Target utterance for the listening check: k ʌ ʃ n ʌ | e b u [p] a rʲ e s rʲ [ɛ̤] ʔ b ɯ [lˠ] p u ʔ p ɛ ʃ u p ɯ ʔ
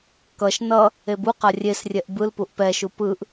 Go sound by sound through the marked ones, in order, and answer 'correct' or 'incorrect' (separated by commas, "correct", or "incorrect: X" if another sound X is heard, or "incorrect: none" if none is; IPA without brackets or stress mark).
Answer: incorrect: q, incorrect: ɛ, incorrect: l